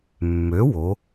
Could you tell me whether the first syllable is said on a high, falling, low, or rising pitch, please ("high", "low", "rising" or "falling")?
rising